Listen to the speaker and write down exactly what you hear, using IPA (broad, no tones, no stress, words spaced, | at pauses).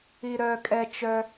iɾœːkʼɛ t͡ʃœ